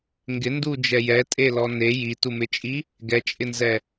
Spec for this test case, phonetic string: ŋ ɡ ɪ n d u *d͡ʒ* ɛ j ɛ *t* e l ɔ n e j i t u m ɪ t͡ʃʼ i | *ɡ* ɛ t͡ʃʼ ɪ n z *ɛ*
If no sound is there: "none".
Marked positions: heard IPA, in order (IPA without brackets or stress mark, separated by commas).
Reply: d͡ʒ, tʼ, ɡ, ɛ